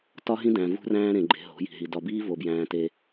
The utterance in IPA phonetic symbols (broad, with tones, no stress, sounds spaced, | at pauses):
t ɒ˦ ɦ ĩ˦ d æ̃˨ v ṳ˦ r æ̃ː˦ ɾ ẽ˨ ɡ͡ǃ e̤˨ ɦ o̤˨˦ j i̤˨ ɦ i˨ d ɒ˨ b iː˦ v o˨ b j æ̃ː˨ t e˦